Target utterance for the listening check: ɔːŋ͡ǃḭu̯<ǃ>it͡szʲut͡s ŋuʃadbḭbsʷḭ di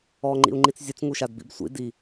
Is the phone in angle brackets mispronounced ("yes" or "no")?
yes